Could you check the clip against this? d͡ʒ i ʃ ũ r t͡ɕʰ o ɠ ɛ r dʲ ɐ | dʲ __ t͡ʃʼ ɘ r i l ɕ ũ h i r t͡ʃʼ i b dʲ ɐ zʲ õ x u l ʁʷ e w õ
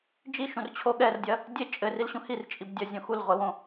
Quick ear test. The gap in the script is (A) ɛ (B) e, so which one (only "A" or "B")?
B